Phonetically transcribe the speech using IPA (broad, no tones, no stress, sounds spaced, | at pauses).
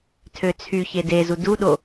tʰ ø t͡sʰ y ç e d e z u d u ɗ o